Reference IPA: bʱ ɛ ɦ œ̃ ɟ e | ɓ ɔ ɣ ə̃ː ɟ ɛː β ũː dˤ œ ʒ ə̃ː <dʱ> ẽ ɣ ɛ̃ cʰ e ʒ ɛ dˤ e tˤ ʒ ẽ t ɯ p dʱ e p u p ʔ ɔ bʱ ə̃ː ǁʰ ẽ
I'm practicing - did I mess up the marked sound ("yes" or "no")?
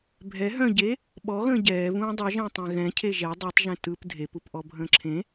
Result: yes